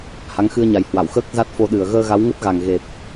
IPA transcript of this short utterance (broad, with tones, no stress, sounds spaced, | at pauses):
h a˨˦ ŋ x ɨ˧ ə̯ ɲ a˨˩ j h w a˧˩ w x əː˦˥ k̚ z a˦˥ t̚ f o˧ ɗ ɨ˨˩ ə̯ ɣ əː˧ ɣ a˨˦ w ŋ ə˦˥ t̚ ɣ a˨˩ ŋ ɣ e˨˩ p̚